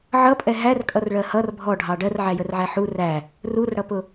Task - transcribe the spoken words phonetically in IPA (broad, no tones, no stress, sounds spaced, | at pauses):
ʕ ʌ pʼ ɛ ɦ æ r kʼ ʌ r ɭ ɜ h ʌ r bʱ ɔ ɖʱ ɑ ɖ ɜ r ʕ æ j ə r ʕ æ ħ u r æ | r u r ɽ ʌ p ʊ